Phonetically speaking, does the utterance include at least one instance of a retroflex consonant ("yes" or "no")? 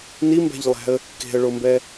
yes